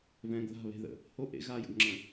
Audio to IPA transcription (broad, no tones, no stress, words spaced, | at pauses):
vɛ̃ɡ ða̤ βe̤ðə̰ | ho ʔḛ ɣajə̰ɡŋ͡ǁə̃